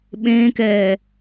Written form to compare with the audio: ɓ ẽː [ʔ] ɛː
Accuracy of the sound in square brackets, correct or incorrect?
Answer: incorrect